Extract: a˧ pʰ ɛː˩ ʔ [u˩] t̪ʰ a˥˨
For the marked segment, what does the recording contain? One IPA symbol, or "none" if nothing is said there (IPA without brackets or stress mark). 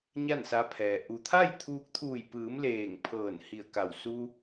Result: u˩